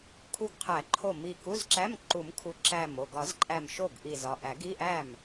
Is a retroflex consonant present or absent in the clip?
absent